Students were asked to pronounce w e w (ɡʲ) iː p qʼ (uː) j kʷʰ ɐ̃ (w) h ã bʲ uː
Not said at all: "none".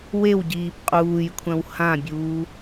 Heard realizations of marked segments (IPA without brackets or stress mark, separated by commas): ɟ, uː, w